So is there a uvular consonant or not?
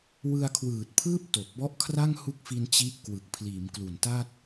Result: no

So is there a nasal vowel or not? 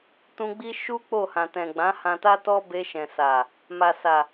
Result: yes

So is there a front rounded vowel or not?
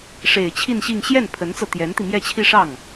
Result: no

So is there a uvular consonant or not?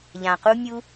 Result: yes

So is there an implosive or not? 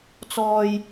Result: no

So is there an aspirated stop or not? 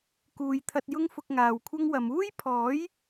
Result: yes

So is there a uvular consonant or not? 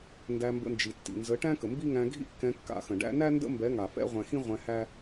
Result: yes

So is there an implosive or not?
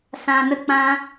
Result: no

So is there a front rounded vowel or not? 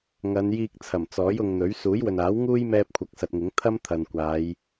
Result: no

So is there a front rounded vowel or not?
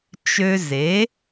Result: yes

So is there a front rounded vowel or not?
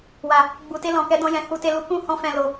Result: no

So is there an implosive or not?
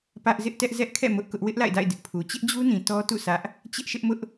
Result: no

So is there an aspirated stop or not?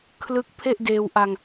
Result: yes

